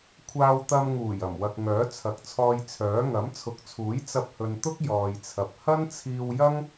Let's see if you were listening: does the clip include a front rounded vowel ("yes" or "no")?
yes